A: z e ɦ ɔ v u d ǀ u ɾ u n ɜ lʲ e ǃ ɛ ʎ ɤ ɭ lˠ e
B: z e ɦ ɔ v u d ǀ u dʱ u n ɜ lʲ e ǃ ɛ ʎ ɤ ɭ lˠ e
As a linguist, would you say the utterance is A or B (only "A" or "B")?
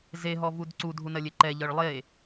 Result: B